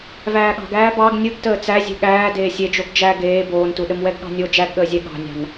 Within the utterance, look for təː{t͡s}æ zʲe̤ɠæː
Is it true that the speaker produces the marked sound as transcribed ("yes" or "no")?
yes